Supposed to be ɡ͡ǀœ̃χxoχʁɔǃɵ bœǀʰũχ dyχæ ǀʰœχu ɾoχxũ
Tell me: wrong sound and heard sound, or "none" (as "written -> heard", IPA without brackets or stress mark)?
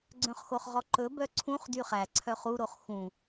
none